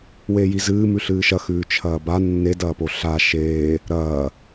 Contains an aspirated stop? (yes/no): yes